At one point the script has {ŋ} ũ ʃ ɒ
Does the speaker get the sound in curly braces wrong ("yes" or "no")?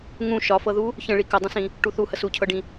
no